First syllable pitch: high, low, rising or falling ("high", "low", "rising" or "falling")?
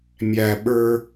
high